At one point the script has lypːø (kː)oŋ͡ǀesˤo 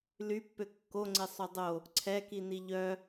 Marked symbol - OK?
yes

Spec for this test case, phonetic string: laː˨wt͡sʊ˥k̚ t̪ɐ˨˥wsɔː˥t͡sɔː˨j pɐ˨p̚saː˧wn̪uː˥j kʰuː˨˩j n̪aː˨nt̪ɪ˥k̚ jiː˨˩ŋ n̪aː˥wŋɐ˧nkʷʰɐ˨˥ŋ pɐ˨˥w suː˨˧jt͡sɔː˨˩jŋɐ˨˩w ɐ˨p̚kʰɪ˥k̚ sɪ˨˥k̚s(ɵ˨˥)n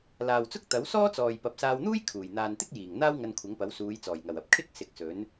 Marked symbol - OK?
yes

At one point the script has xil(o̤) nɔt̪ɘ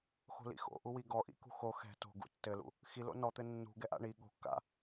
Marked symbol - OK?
no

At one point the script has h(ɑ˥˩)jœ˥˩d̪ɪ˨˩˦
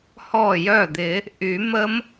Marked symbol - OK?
no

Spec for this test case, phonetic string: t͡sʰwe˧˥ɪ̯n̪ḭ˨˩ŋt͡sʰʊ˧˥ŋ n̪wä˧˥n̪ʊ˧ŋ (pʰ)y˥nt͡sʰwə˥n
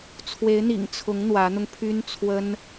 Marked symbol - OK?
yes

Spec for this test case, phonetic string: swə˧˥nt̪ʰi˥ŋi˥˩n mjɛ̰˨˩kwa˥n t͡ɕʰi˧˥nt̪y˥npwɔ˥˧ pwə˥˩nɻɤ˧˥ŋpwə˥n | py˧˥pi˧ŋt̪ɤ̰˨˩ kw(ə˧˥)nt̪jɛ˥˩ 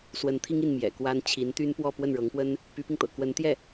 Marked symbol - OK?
yes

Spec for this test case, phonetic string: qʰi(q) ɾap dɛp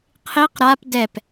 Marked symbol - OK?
yes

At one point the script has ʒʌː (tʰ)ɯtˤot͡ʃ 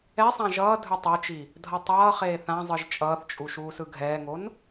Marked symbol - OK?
no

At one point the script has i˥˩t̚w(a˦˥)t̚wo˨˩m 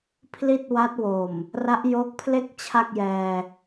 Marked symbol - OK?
yes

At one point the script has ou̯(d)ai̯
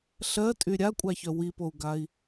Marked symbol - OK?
no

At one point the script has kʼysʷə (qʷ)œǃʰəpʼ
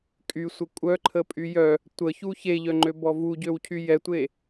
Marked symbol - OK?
no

